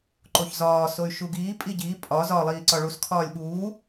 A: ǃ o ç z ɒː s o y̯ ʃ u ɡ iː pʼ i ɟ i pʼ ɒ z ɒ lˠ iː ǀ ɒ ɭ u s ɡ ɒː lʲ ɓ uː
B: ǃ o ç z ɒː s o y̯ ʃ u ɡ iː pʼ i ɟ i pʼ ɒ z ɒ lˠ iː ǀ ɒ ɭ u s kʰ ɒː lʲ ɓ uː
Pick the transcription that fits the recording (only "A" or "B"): B